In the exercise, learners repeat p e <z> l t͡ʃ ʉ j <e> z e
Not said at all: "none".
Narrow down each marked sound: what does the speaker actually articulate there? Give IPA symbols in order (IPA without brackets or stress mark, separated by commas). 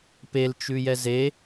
none, ɛ